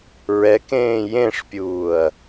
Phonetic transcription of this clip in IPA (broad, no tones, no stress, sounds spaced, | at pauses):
ɹ ɛ k ẽː j ẽ ʂ pʲ uː ɐ̯